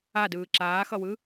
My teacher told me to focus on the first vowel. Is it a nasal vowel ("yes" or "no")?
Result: no